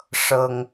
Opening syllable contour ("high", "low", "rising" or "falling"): high